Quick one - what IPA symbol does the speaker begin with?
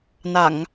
n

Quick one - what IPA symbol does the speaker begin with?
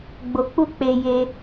ɡ͡b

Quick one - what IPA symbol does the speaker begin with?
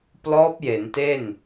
p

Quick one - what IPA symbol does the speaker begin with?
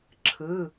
ǁʰ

